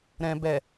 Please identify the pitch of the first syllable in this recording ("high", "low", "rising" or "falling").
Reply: low